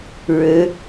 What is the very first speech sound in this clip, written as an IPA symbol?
ɻ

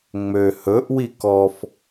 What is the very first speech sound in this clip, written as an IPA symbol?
ŋ͡m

